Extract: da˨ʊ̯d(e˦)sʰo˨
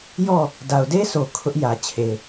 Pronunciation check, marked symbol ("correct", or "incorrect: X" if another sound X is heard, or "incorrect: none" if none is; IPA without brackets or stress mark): correct